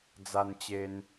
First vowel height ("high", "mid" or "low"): low